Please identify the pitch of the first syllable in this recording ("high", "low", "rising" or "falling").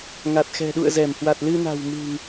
low